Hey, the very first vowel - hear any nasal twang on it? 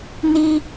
no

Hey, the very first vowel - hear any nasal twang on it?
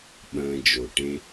yes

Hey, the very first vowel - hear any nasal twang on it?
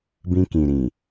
yes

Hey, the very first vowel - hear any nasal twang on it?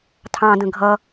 yes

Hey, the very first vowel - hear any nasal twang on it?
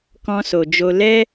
yes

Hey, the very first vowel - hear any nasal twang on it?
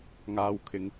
no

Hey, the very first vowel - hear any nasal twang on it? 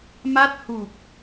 no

